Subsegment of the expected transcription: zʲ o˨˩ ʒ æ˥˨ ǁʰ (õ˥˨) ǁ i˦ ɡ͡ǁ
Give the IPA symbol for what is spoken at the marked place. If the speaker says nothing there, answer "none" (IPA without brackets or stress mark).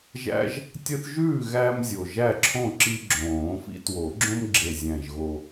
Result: õ˥˨